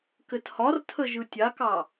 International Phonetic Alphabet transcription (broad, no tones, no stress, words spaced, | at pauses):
kɘthɒrtʰə ʒɯtʲakɑ